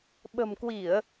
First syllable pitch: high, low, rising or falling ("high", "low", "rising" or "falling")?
low